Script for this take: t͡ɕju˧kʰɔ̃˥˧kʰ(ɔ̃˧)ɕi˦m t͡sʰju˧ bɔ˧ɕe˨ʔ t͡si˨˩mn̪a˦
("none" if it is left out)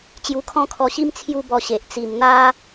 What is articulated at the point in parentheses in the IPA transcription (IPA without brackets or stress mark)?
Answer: ɔ˧